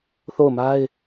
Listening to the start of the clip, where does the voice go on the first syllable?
falling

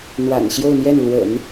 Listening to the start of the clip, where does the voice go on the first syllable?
low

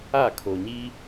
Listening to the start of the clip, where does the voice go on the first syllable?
falling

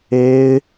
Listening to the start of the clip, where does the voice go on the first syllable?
high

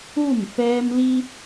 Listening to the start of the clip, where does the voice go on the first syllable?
falling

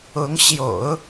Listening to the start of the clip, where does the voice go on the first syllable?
rising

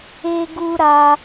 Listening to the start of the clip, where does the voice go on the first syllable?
high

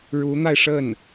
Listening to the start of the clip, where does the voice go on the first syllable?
rising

